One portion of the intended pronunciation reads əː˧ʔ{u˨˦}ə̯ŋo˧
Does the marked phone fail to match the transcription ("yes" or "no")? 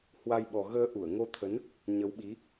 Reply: yes